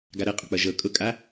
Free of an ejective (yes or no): no